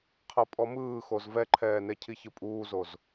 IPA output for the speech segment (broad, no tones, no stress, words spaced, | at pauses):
qʰɤpʼɔmɯːxoz vɛǃʰɛːne cʰiçɯpʼuːzoz